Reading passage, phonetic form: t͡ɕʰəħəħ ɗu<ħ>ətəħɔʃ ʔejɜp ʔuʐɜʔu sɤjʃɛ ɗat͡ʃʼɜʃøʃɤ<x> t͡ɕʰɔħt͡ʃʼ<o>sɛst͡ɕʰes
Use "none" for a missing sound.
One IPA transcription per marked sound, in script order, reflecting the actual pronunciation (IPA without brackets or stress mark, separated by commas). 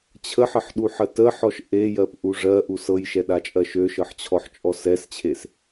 ħ, ħ, ɔ